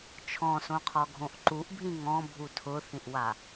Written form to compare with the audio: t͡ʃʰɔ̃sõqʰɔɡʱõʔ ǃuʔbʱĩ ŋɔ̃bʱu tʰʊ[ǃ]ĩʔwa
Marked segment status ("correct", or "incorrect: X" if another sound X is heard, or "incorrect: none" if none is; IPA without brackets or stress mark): incorrect: θ